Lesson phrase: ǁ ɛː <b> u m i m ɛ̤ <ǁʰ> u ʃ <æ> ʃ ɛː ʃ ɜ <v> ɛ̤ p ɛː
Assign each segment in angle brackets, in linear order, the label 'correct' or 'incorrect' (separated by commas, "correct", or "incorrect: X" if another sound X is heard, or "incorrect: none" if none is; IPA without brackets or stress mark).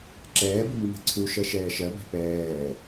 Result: correct, incorrect: ǀʰ, incorrect: ɜ, incorrect: b